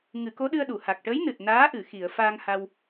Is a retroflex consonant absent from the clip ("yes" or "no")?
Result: no